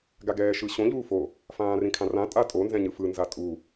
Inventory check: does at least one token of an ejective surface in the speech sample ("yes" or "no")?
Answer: yes